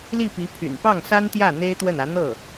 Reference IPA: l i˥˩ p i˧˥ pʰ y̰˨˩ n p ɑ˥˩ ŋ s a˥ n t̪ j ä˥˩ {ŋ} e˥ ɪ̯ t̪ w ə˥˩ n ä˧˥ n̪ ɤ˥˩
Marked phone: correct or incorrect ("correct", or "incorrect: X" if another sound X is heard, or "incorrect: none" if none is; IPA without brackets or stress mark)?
incorrect: n̪